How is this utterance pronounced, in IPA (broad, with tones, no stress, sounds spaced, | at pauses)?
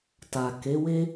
t a˨ k e˨˦ w e˦